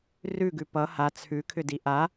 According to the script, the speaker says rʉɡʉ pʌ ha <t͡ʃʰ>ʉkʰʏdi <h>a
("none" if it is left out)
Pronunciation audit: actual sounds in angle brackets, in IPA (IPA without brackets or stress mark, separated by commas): t͡sʰ, ʔ